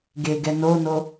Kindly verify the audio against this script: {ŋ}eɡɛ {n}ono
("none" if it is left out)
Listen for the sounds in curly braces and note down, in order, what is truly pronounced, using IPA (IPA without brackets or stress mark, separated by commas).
ɡ, n